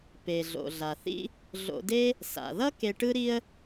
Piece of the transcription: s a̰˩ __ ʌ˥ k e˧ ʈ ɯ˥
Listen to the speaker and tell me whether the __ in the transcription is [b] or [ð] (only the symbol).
ð